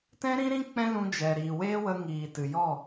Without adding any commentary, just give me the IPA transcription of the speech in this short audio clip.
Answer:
t ɛ̃˦ ɾ ĩ˦ ɾ ĩ˦ k͡p ɛ̃˦ l ũ˧ d͡ʒ ɛ˨ ɾ iː˨ w eː˦ w ə˧ ŋ iː˨ t ɨ˨ j ɔ˦˨

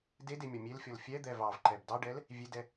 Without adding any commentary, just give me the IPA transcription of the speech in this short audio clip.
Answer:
d e d e mʲ ɔ mʲ e l fʲ ɔ l fʲ ɛ d̪ ɛ v ɑ v ǃ ɛ b d ɑ ɖ ɛ l | vʲ e d ɛ

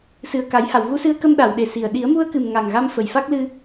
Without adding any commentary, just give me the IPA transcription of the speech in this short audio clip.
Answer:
s ɨ˨˩ ə̯ k a˨˩˦ j h a˨˩˨ w ɣ u˧˥ s ɨ˧˥ ə̯ k ə˧ m ɗ a˨˩˨ w ɗ e˨˩ s i˨˩ ə̯ ɗ i˨˩˦ ə̯ m u˧ ə̯ k ɨ˨˩ m ŋ a˨˩ ŋ ɣ a˧ m f ə˨˩ j f a˦˥ k̚ l ɨ˧

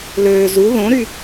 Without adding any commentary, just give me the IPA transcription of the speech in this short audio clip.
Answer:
l øː z u ð õ ɾ y

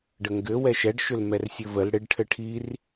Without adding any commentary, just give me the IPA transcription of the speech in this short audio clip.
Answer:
ɖ ə ŋ ɡ ɘ w ɛ ʃ ɛ ɖ ʃ ʏ l m ɛ r sʲ ɘ v ə l ɽ ɪ ɖ ʈʰ ɘ ʈʰ i r

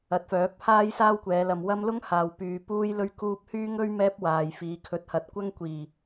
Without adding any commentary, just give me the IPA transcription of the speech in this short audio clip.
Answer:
ɐ˨˥ t̚ f œː˨˥ k̚ pʰ aː˥ j s aː˥ w kʷ ɛː˨˧ l ɐ˨ m w ɐ˥ m l ʊ˥ ŋ h aː˨ w p yː˨ p uː˥ j l ɵ˥ ɥ k uː˥ p̚ h yː˥ ŋ ɵ˥ ɥ m ɛː˥ p̚ w aː˨ j f iː˨ kʰ ɵ˨˥ t̚ h ɐ˨˥ t̚ kʷ ɐ˥ ŋ kʷ iː˨˩

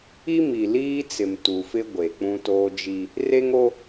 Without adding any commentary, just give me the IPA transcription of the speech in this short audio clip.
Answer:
i˦ m i˨ l iː˦ t͡s ɪ˨ m t u˨ f ɪ˦ ɡʷ e˨ k͡p ũ˦ t oː˦ d͡ʒ i˦ | r e˦ ŋ o˦

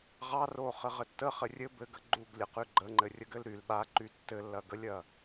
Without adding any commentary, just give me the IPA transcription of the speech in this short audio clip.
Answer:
ʁ ɑ r o χ ɘ ʁ ɘ tː ə χ ɘ rʲ ɘ b ɘ ɡ ə ɡ͡ǃ u ɡ lʲ ə q y ɡ͡ǃ ə ŋ͡ǃ ɘ rʲ ə ɡ ɘ l ɾ y l ɓ a ǃ y tː ɘ lː ɐ ɡ ə lʲ ɐ

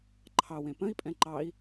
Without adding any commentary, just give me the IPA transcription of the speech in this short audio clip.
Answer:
ǃʰ ɑ w ẽ p ə̃ i̯ pʼ ɛ̃ ǃ ɑ i̯

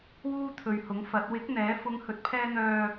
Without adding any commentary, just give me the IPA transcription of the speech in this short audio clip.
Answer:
w uː˥ t̪ʰ ɵ˨ ɥ h ʊ˨˥ ŋ f ɐ˨˥ t̚ w ɪ˨˥ k̚ n̪ ɛː˨˥ f ʊ˧ ŋ h ɵ˨ t̚ pʰ ɛː˧ n̪ œː˨

